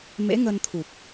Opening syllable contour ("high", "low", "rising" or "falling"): rising